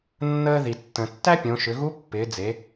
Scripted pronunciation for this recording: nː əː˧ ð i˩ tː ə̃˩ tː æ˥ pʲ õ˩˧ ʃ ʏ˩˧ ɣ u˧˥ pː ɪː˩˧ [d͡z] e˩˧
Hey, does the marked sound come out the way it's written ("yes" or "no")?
yes